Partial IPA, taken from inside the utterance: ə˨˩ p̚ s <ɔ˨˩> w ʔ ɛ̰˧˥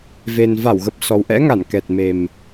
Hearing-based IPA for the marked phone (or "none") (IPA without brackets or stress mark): ɔ˨˩